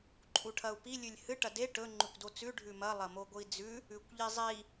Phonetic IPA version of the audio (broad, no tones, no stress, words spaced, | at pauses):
ǃʼuʈʰɐu̯pi lʲʉlʲhɨ ʈɐde ʈɵ ŋ͡ǃʉkʷdot͡sʉ ɖʱʉmɐ lˠɐmoɡʷɨi̯d͡zʉ | ʉkʷʎizˤi